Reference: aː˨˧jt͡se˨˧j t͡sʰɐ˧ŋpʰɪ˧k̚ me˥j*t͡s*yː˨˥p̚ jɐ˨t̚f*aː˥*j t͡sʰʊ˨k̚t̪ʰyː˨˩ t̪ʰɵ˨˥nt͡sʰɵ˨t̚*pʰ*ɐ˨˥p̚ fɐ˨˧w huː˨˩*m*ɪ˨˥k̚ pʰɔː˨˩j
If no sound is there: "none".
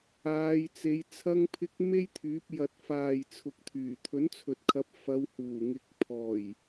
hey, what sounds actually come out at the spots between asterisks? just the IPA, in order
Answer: t̪ʰ, aː˨, kʰ, ŋ

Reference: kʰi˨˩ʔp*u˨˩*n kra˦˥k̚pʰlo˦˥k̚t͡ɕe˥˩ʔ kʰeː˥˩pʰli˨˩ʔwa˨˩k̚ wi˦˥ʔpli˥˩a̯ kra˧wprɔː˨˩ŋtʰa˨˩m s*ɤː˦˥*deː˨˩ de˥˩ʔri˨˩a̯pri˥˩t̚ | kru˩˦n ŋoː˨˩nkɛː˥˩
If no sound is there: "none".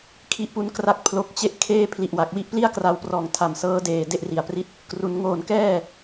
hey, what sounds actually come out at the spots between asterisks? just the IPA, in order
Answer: u˩˦, ɤː˦˥

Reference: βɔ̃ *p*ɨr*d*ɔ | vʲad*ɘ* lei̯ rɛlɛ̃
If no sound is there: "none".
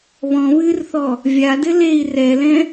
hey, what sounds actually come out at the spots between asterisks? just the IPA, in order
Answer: β, θ, ɘ

